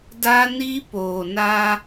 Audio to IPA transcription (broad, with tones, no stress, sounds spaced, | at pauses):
d a˦ n i˦ p oː˨ n a˦